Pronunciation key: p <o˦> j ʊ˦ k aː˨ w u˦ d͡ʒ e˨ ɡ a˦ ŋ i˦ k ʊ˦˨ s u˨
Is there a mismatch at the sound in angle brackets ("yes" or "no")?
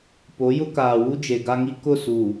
yes